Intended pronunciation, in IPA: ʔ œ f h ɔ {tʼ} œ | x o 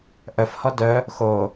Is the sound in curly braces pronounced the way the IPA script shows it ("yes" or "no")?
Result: no